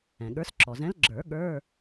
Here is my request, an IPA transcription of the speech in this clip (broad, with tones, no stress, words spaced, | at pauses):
ɛ̃˩ɠə˞˨˥s ǁʰɔ˩zɛ̃˨˥l ɡ͡ǁə˞˨˩˦ ɠə˞˧˥˧